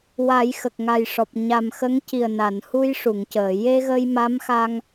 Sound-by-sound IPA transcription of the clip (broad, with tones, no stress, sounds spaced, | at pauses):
w a˨˩˦ j x ə˨˩ k̚ ŋ a˨˩ j ʂ ɔ˨˩ p̚ ɲ a˨˩ m x ə˧˥ ŋ c i˨˩ ə̯ n a˨˩˨ n h u˧ j ʂ u˨˩˨ ŋ c əː˨˩˨ j e˧ ɣ ə˧ j m a˧˥ m x a˧ ŋ